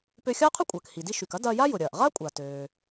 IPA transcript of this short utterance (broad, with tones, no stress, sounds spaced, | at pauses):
p ø˧ xʲ ɐː˥ qʰ ʊ˥ kʷʼ ɐː˩ k h i˩ d i˧ ʃ y˩ k ɐ˥ d ɐː˧ j a˥ j ʊ˩ ɾʲ ɐː˩ ʔ ʁ a˥ kʷʼ a˩ t øː˩